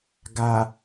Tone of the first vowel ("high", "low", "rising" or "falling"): low